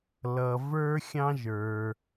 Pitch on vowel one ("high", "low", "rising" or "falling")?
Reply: low